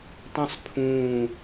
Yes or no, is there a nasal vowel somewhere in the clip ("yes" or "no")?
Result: yes